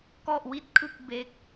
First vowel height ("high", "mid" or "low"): mid